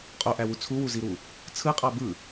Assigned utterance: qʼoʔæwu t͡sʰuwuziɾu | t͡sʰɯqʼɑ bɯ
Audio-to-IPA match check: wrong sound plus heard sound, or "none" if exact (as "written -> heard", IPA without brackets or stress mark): none